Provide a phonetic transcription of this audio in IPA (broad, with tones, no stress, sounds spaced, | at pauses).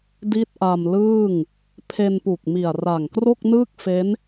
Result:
d i˦˥ t̚ ʔ a˧ m l ɯː˥˩ ŋ | pʰ e˧ n p u˨˩ k̚ m i˨˩ a̯ r a˨˩ ŋ k r o˥˩ k̚ n ɯː˥˩ k̚ f e˦˥ n